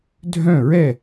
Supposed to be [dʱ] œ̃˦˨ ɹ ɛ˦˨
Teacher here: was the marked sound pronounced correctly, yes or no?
yes